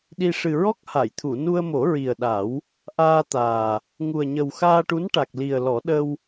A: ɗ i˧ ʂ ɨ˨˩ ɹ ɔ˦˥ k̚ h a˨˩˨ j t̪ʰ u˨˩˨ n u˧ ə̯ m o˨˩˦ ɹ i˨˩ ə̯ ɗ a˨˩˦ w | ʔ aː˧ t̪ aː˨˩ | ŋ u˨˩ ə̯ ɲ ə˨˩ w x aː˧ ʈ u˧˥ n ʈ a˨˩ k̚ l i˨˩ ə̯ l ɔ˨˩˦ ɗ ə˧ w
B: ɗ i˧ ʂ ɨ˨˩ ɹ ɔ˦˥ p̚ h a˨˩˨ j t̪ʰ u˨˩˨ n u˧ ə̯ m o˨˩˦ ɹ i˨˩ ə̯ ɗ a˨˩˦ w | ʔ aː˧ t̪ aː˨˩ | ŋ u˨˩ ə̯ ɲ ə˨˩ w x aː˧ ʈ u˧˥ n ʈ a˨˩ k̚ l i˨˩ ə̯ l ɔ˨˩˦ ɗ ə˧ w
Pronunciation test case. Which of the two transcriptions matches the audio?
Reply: A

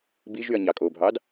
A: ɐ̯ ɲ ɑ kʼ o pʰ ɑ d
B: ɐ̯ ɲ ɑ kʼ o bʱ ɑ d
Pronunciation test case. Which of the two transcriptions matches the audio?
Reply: B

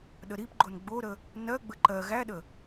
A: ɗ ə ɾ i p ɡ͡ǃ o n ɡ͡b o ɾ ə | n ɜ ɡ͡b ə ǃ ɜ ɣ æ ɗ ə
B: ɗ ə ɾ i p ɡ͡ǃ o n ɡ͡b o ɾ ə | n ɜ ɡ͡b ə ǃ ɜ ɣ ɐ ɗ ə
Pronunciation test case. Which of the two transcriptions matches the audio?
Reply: A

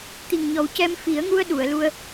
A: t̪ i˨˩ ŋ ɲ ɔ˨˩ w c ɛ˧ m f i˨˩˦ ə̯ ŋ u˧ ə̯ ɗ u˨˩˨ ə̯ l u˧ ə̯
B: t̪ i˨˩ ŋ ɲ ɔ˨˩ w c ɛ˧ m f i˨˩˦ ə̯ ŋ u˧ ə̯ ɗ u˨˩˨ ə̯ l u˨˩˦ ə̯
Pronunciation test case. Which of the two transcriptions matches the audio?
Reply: A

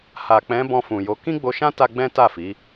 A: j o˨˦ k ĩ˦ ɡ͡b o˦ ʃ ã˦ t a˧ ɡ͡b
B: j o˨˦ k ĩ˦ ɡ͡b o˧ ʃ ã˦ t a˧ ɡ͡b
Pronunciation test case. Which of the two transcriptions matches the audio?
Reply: B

